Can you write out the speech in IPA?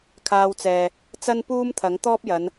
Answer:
kʰ aː˧ w t͡s ɛː˨ | t͡s ɐ˥ n p uː˥ m t̪ʰ ɐ˨˥ ŋ t̪ ɔː˥ p̚ j ɐ˨˧ n

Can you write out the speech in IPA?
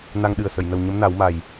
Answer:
n a˧ ŋ ɗ ɨ˨˩ ə̯ s ə˨˩˨ j n ə˨˩ w ɲ ə˧˥ m n a˨˩˦ w m a˨˩ j

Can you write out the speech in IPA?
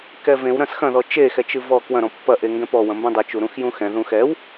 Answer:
k ɛ v ẽ w ɾ ɐ̃ s x ɐ̃ ð ɔ t͡ʃ e x ɛ t͡ʃ ɨ v ɔ k w ɐ̃ ɾ ɔ̃ pː ɐ ʔ e ŋ ɡ ɛ̃ p ɔ w ɐ̃ m b ɛ̃ dˤ ɘ t͡ʃ u ɾ ũ x j ũ x ɛ̃ ð ũ x ɛ w

